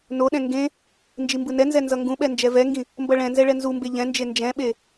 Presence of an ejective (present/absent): absent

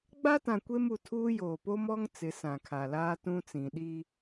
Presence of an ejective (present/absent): absent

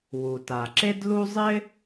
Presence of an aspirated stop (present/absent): absent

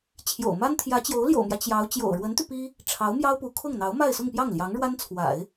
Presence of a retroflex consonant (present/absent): present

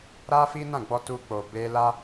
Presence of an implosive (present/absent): absent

